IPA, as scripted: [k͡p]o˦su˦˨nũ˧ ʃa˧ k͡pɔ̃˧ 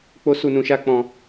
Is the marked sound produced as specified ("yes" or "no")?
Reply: yes